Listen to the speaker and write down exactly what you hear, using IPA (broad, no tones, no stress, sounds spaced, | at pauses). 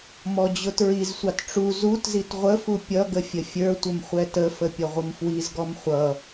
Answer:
m ɔ d͡ʑ ʊ t ɹ i z sʷ ɑ t ʈ͡ʂ u z u t z i t ʁʷ ə f u pʲ ʌ ɡ ə fʲ ə fʲ ə˞ tʷ ə m χʷ ɛ t ə f ə pʲ ʌ ʁʷ ə m f w i z ɡ ɔ m χʷ ʌ